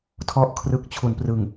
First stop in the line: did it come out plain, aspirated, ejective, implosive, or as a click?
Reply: aspirated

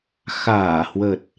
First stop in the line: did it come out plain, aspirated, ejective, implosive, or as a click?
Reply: plain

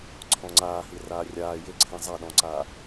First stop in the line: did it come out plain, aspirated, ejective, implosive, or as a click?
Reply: click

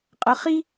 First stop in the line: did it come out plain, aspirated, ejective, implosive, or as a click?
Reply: ejective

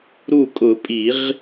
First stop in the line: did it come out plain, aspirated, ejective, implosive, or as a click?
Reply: ejective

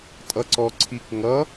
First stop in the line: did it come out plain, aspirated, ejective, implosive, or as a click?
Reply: ejective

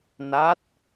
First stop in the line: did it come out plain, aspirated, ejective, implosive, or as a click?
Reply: plain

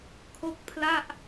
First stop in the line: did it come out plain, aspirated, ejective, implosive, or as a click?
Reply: aspirated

